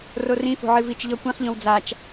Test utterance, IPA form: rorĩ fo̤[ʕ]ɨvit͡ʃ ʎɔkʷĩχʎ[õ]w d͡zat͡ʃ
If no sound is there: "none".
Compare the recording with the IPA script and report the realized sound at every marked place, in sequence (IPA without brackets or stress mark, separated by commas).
ʕ, õ